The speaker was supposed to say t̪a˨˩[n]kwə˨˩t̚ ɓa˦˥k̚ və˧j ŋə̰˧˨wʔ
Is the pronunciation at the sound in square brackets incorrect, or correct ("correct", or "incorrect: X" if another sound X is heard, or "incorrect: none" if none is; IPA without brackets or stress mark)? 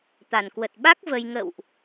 correct